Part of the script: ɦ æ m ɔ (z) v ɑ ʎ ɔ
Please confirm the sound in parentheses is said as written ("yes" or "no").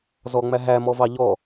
no